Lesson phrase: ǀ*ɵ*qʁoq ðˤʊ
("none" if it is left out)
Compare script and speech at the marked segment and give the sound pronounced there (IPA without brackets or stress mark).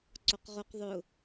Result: o